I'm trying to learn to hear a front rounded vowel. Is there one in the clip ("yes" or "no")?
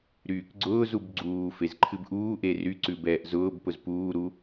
yes